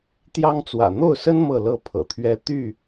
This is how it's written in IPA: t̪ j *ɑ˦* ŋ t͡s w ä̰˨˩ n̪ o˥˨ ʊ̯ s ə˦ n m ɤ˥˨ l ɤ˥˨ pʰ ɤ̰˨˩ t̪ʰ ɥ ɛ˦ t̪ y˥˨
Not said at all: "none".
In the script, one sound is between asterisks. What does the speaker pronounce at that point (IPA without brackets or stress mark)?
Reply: ɑ˦